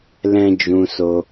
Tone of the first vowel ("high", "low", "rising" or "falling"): high